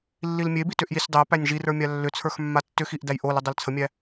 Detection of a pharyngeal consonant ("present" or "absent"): absent